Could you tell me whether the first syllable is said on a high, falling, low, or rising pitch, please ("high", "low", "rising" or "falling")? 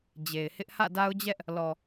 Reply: low